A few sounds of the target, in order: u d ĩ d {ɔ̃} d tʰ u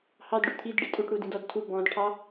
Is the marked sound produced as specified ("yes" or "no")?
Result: no